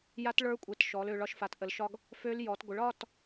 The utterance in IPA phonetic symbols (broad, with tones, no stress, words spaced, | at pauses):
ja˦˥tɭə˞˦˥kʷʼɛ˩˥t ʃɔ˩˧lø˩˧ɭɒ˩˥ʃ fa˩˧tʔə˩˧lʃɒ˧ɡ | fø˦˥l jɔ˩˧tɡʷə˩˥ɭɒ˧˥˧t